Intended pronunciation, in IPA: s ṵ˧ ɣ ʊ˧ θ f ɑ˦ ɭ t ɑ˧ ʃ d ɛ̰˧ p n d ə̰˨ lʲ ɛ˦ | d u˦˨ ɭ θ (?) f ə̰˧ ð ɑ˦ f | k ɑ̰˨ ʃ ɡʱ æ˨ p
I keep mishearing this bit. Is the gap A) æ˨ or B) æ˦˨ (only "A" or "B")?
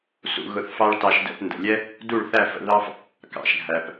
B